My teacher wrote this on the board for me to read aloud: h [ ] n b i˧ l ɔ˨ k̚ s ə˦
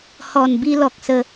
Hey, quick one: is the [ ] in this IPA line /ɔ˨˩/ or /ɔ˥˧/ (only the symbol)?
ɔ˨˩